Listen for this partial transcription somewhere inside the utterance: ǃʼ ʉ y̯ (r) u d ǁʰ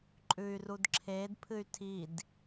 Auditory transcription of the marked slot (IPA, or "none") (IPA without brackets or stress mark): r